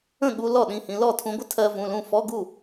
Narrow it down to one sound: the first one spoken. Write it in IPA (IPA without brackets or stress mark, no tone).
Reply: ə̃